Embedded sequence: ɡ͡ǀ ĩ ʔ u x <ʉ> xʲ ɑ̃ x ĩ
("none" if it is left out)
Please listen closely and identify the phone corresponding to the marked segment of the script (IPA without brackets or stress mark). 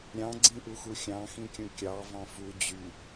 u